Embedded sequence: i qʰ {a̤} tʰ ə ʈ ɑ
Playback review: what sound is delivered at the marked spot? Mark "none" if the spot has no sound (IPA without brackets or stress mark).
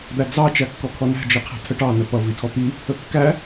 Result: æ̤